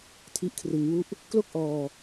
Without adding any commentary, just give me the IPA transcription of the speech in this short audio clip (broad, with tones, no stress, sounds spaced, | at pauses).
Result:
tʰ i˦˥ ʔ kʰ r ɯ˧ ŋ w u˥˩ ʔ | k l o˥˩ k̚ ʔ ɔː˧